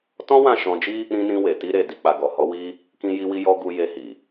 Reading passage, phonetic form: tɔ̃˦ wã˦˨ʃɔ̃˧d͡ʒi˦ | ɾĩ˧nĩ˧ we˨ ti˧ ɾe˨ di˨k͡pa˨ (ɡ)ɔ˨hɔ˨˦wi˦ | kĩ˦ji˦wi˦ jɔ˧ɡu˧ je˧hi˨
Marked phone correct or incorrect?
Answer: correct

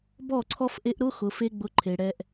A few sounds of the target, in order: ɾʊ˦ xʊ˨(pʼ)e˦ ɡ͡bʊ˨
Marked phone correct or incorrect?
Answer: incorrect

